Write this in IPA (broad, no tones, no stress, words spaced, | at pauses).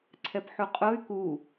ǀʰɛpħuqʼoy̯ ku